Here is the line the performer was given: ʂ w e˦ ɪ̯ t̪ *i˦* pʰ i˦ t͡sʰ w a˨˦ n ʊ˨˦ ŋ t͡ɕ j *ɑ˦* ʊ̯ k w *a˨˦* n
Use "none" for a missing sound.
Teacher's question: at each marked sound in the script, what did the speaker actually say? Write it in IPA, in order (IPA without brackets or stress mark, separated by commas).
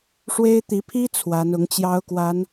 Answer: i˨˦, ɑ˦, a˨˦